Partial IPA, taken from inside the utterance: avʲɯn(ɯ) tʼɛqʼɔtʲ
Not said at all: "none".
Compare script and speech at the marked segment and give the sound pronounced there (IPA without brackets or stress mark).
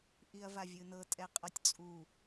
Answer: ɤ